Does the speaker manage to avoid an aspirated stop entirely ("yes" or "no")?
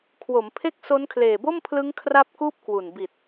no